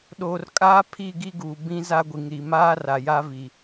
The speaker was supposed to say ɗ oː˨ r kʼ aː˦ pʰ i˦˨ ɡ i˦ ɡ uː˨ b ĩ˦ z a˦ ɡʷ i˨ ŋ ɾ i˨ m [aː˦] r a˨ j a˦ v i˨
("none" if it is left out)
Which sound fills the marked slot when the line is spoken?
aː˦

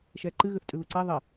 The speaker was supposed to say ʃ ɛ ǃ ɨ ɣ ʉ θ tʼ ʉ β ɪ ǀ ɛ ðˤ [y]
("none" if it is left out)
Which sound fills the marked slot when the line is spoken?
i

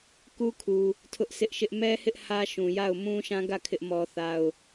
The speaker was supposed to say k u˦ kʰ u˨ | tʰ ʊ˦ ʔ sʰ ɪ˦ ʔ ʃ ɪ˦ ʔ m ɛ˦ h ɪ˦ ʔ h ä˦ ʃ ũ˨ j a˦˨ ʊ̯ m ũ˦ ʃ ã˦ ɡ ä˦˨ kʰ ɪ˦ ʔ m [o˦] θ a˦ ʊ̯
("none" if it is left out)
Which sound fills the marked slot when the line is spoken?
ɔ˦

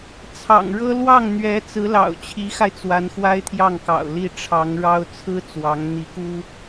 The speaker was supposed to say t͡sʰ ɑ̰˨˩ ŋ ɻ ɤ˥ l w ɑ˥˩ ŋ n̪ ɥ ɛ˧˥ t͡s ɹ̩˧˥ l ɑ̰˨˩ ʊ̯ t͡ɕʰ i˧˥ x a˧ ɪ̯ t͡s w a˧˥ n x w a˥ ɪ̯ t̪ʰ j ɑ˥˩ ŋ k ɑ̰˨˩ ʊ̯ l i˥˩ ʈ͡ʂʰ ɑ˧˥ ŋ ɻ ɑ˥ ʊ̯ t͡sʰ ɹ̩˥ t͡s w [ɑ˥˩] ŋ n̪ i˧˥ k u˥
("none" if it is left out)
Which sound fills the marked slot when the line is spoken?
ɑ˧˥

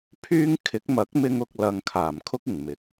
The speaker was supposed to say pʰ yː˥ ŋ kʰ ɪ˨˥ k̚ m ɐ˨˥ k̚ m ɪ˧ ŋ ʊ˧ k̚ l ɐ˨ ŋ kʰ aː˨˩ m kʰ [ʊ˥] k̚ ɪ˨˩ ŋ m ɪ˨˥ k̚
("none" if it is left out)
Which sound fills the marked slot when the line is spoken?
ʊ˥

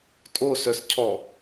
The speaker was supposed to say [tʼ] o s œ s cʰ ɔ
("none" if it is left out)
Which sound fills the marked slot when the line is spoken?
tʼ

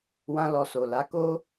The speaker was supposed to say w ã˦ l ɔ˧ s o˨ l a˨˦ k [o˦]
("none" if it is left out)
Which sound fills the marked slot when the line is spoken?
o˦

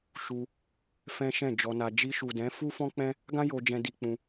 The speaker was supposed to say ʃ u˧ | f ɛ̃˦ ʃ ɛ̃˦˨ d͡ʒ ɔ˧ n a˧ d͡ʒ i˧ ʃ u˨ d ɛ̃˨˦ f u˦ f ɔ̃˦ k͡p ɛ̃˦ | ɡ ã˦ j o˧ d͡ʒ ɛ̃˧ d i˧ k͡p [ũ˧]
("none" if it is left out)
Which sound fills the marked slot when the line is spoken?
ũ˧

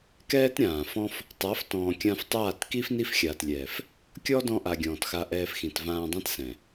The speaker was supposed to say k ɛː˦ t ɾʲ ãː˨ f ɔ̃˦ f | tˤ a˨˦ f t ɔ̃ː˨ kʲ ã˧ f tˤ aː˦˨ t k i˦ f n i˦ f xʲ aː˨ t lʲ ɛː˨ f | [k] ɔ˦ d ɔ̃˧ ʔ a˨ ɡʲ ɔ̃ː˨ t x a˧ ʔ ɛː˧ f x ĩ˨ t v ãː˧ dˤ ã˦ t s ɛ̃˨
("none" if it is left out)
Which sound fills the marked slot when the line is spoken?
kʲ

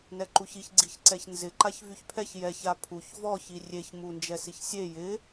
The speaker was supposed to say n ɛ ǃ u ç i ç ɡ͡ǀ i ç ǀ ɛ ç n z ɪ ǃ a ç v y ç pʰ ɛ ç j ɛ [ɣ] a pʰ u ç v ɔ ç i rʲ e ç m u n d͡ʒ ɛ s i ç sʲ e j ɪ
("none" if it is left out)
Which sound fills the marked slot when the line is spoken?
ç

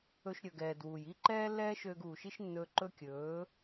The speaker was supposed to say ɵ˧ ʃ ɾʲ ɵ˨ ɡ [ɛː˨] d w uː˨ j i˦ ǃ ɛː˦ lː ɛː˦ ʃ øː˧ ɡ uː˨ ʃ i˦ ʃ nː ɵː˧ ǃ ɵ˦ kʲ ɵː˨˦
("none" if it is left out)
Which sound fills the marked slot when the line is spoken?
ɛː˨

